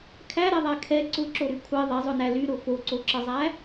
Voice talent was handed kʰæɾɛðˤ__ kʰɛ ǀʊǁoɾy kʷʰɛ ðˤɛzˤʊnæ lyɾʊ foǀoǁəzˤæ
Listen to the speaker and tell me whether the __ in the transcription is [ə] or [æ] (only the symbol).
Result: æ